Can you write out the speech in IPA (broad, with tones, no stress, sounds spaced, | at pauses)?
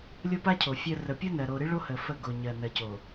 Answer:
lʲ o˦ p a˦ cʰ o˨ fʲ ɜ˨ r ə˨ pʲ o˦ n ɜ˨ ɾ o˨ ɾ ɨ˦ ɭ o˦ h ə˨ f ə˦˨ ɡ o˨ ɲ ɜ˨ n ɜ˨ c o˨